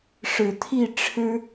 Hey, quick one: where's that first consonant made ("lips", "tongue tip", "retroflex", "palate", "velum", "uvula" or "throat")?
retroflex